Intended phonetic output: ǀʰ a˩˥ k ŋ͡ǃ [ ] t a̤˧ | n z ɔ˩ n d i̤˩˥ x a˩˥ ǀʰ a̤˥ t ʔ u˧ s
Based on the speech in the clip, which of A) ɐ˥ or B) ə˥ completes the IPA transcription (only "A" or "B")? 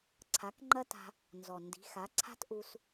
A